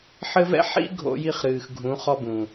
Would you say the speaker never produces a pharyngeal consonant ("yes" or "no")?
no